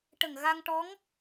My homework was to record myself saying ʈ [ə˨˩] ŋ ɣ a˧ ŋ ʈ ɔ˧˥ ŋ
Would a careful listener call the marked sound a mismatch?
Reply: no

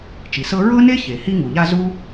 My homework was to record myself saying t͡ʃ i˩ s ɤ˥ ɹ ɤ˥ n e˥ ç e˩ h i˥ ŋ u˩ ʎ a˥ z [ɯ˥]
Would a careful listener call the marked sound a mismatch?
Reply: yes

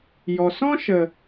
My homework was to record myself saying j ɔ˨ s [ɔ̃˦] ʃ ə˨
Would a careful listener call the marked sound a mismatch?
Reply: no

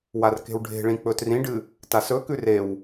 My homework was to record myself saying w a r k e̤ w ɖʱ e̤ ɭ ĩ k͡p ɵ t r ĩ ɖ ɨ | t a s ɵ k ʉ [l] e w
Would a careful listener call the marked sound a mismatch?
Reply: yes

